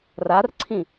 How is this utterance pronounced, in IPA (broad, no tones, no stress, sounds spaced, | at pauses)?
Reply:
r a r ǀʰ ĩ